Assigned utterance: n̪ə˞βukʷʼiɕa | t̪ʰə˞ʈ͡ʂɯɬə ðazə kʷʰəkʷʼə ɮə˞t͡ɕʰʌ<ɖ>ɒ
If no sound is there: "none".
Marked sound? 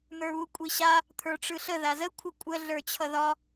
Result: ð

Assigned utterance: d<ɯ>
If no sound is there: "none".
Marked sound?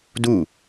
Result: u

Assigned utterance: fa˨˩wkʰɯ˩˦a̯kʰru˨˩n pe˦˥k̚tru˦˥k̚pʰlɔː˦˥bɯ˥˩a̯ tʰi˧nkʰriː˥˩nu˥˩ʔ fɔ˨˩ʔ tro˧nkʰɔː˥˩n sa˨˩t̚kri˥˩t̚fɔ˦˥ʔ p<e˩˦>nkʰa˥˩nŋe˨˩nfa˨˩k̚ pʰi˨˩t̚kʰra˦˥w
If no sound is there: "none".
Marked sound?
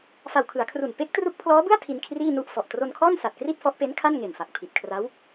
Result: e˦˥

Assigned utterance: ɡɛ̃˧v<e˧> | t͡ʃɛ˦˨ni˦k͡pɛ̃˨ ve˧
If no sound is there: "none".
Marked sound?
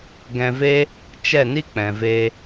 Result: e˦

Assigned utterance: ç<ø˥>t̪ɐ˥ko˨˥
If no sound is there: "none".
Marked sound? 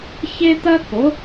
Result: e˥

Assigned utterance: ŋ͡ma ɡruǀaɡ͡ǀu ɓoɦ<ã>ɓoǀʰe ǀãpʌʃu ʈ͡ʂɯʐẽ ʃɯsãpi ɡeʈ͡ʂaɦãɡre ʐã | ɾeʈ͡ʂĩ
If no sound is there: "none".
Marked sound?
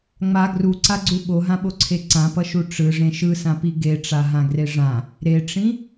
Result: ã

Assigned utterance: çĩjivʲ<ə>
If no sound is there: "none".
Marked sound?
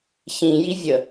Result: ə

